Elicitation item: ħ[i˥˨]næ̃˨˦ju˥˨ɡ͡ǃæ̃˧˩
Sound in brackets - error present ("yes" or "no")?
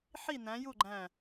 no